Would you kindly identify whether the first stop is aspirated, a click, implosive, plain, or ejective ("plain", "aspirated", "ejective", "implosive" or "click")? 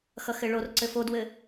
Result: click